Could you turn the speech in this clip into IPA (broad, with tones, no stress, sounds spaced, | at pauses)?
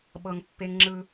ɓ ɤ˧ ŋ pː e˦ ŋ ŋ͡ǁ ɯ˧